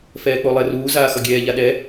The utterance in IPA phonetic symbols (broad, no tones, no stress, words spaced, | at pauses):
fɛːk͡polˠɛruː zaːxʌɡʲɛː ʎaɗɛ